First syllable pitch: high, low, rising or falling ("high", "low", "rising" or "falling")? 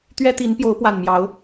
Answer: high